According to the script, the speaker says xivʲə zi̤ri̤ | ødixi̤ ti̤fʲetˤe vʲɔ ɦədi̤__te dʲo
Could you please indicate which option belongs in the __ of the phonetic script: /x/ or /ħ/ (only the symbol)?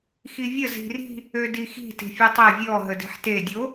ħ